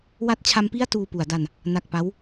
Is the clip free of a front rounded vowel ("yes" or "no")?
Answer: yes